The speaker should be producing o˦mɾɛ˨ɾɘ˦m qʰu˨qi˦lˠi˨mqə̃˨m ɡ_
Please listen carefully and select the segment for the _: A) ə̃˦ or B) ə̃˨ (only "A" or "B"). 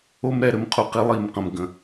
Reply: B